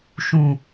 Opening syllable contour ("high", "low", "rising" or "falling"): low